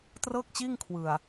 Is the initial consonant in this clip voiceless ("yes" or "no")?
yes